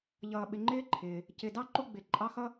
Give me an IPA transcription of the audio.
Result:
ʎ ʌː˨ ɓ ɪ˨ ŋ͡ǃ ɪː˦ ǃʰ ɪː˩ | c ɪ˨ d ɑ˥ ǃ u˦ ɡ͡b ɪ˩ ǃʼ ɑ˦ x ʌ˥

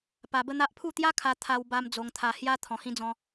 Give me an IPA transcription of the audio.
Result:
p a˧ b ə˦ n̪ a˦ ʔ pʰ u˥˧ t̪ j a˦ kʰ a˧ t̪ʰ a˧ w b a˧ m d͡z o˧ ŋ t̪ʰ a˧ h j a˦ t̪ʰ ɔ̃˧ h ĩ˦ d͡z ɔ̃˦

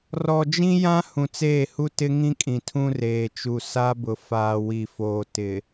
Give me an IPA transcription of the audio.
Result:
r ɔ˨ d͡ʒ ĩ˦ j ã˦ h ũ˨ t͡s eː˦˨ h u˦ t ɪ˦ ŋ ĩ˦ kʼ ĩ˨ tʰ ũ˦ r eː˨ t͡ʃ u˨ s a˦ b ʊ˨ f aː˨ w i˨ f oː˨ t ɪ˨

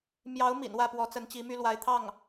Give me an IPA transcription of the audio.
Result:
m j ɑ˧˥ ʊ̯ m ḭ˨˩ n w ä˥˩ p w ɔ˧˥ t͡s ə˧˥ n t͡ɕ i˧˥ m y˥ l w a˧˥ ɪ̯ t̪ʰ ɑ˥˩ ŋ

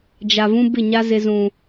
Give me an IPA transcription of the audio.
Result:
d͡ʒ a˨ v ũ˦ b ɪ˦˨ ɲ a˦ z ɪ˦ z ũ˦

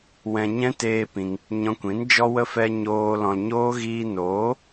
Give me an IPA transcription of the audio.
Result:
w ɛ̃˧ ɲ ɛ̃˦ t eː˦ p ĩ˧ ŋ | ɲ ɔ̃˧ kʷ ĩ˨˦ n d͡ʒ ɔ˦ w ə˦ f ɛ˧ ɲ oː˧ l ɔ̃˧ l ɲ oː˦ ɣ iː˧ n oː˨˦

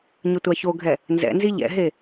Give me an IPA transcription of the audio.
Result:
ɲ ə tʷ a ç o ɡʱ ɛ | n z ɛ̰ n z i ʎ ɛ̰ ɦ e

